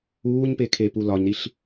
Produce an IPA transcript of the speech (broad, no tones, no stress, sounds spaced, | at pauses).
uː ɲ p e kʰ e p u l ɒ ɲ ɾ i ɬ